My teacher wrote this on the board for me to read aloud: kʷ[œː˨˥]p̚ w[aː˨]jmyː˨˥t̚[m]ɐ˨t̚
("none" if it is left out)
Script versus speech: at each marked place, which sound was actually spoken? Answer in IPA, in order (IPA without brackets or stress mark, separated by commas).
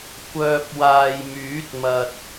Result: œː˧, aː˨, m